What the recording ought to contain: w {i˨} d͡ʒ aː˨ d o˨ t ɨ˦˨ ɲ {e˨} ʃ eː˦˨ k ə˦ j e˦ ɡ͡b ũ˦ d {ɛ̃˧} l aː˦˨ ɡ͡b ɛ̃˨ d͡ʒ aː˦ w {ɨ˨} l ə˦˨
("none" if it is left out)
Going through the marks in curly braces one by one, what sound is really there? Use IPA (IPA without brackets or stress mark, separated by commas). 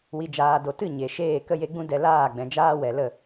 i˨, e˨, ɛ˧, ɛ˨